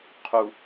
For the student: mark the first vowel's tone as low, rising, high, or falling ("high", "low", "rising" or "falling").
low